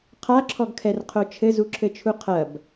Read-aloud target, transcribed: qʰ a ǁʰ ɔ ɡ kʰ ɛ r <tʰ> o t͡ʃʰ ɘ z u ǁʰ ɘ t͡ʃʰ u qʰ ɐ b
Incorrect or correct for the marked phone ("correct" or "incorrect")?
incorrect